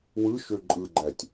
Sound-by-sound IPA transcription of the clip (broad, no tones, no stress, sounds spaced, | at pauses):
w ɯ ʃ ø ǃʼ ɯ ɡ͡ǃ æ tʲ